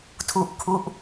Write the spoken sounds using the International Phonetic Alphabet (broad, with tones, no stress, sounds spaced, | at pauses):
tʰ u˦˥ ʔ kʰ u˦˥ ʔ